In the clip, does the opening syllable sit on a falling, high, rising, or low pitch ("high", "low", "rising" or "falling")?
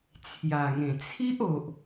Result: low